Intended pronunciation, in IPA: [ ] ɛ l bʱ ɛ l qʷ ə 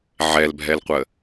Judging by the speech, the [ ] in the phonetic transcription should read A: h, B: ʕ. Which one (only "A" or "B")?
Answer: B